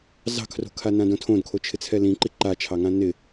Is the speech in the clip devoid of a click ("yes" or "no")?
no